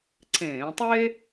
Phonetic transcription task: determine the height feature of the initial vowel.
mid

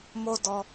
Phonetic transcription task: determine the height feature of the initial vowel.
mid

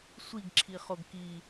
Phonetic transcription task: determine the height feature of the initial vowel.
high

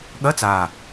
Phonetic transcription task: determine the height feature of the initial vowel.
low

